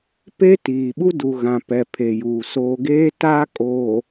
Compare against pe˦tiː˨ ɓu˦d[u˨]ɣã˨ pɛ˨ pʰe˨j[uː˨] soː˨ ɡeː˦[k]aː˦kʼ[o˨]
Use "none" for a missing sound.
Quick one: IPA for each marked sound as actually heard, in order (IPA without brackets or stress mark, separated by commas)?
u˨, uː˨, t, oː˨